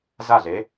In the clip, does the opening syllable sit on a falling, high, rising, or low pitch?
falling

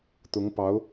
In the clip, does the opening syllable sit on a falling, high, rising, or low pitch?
rising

